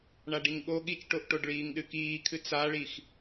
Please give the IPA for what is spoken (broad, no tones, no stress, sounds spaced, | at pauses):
ɳ a ɖ i ŋ ɠ o ɠ i t͡ʃ ʈ o ʔ ʈ o ɖ ɭ iː ŋ ɗ ɨ k iː kʰ ɨ t͡s a ɭ i x